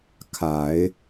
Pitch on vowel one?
low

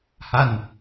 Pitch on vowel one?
falling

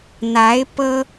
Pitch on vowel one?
rising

